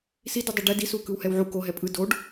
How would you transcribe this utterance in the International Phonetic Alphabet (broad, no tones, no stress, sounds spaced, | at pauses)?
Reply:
s i d ɯ dˤ i ɖ ɛ d i s u k ɯ w h ɛ w ʕ u k o ɦ ɛ pʼ ɯ d o ɖ